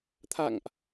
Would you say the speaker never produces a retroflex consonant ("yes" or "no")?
yes